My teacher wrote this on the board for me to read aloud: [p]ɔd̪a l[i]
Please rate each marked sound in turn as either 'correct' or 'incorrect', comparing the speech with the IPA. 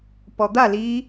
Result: correct, correct

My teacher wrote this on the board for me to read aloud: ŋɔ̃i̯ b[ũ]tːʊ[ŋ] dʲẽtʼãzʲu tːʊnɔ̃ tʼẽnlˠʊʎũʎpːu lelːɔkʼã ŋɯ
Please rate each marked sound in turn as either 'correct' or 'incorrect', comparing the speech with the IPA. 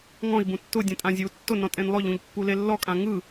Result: correct, incorrect: none

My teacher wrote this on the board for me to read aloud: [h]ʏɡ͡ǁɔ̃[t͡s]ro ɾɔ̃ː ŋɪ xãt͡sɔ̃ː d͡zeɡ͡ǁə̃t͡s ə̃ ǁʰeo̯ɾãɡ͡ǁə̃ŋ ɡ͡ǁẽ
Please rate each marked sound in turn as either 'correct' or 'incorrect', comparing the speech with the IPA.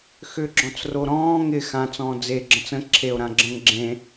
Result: incorrect: x, correct

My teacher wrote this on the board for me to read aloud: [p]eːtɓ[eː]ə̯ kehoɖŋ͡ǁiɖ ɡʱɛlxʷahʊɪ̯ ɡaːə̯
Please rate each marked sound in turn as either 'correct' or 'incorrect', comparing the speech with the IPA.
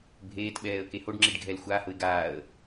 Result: incorrect: bʱ, incorrect: ɛː

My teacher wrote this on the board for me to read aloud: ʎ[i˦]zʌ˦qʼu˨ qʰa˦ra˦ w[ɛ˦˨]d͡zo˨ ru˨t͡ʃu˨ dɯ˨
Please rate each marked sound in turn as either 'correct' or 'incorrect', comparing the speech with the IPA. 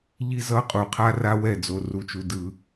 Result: correct, correct

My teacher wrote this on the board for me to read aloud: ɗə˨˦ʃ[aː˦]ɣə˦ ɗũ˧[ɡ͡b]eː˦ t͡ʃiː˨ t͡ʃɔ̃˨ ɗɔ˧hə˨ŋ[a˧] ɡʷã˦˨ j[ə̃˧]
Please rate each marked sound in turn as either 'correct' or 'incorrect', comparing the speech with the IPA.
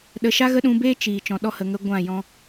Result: incorrect: a˦, incorrect: b, incorrect: ə˧, incorrect: ɔ̃˧

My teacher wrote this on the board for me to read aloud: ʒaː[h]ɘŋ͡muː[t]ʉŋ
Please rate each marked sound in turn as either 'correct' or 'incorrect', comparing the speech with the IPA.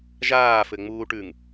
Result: incorrect: f, incorrect: ʈ

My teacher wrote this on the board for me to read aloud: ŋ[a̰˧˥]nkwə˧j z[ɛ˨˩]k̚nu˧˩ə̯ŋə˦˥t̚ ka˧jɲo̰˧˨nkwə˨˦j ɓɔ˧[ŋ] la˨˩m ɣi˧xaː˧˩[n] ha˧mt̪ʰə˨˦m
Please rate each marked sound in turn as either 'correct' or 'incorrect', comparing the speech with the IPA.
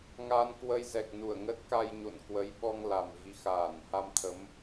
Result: incorrect: a˧, correct, correct, correct

